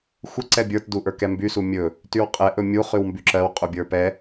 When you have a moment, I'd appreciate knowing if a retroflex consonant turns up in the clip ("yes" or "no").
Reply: no